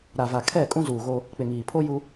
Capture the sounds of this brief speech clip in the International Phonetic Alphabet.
ɾa˨va˨ kʰɛ˦˨ kʼũ˦zuː˨ɣo˦ | k͡pɪ˨ŋiː˨ pʰo˦ju˦

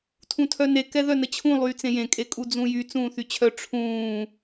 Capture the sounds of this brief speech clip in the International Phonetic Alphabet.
tʰũtʰœne kɛðœnət͡ɕʰũ lˠyːt͡sẽjẽ kʼekʼud͡zũjy t͡sũːθyt͡ɕʰœ ʈ͡ʂʰũː

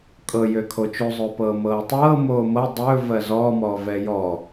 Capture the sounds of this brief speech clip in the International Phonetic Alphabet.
kʼɤ jøkʰot͡ʃozˤɵː pɤːmɤːtˤɤː moːmɤ dˤɵː vɜzɔːmɔː vɛːjɔ

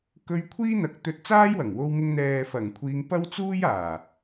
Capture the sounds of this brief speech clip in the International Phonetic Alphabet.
kɵ˧ɥ kʷʰiː˥n̪ɐ˨˥k̚t̪ɵ˧t̚ t͡saː˥jwɐ˨˩ŋwo˧wŋɪ˧ŋ n̪ɛː˨fɐ˨˩ŋkʷʰiː˨˧ŋ pɐ˥wt͡suː˥jaː˨˩

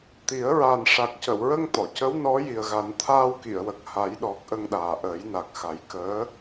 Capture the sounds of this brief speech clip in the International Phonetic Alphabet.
t̪i˨˩˦ə̯ ɹaː˨˩nʂa˨˩k̚cə˨˩˨wɹə˧ŋ t̪ɔ˨˩˨cə˧˥w nɔ˧˥ji˨˩ə̯ɣa˨˩˦n t̪ʰaː˧wki˨˩˨ə̯wə˨˩k̚ ha˨˩˦jɗɔ˨˩k̚ʔə˧ŋ ɗaː˨˩ʔəː˨˩˦jna˨˩k̚xa˨˩˦j kəː˧˥

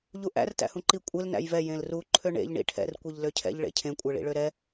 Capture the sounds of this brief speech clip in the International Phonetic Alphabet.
ʎuʔæ̰r tæ̰hũǃi kʷʼel næ̰jvɛ jẽlru ǃʰøɳḛʎ ɳḭʈʰɛ̰r kʷiʎløcʰɛ̰ʎ ɭḛcʰẽ kʷʼɛɭḭɭøɾɛ

